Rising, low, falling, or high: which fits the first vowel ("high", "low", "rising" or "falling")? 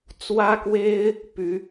high